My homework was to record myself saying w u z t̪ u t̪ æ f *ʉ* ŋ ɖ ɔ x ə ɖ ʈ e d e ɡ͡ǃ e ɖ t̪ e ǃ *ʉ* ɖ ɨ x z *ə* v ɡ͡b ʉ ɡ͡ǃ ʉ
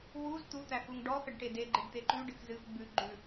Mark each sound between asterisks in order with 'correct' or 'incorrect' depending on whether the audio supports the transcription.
incorrect: u, correct, incorrect: ɨ

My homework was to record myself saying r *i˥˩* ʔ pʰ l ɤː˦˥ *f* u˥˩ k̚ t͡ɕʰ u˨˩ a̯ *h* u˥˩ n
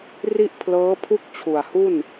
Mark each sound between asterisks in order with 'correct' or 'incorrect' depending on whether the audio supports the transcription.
correct, incorrect: pʰ, correct

